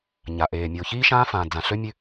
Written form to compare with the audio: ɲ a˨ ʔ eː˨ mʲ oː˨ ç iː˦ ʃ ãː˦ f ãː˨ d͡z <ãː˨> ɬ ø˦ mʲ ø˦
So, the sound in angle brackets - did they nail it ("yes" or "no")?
no